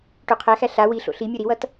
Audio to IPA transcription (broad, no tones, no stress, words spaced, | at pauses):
ʈoqʰæxæ ɬa wiɬo̰ ɬi mʲoɾiwʌt